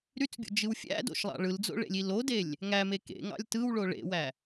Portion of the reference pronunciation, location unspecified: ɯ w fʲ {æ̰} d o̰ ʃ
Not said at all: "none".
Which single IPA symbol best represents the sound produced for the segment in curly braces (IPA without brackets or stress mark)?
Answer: æ̰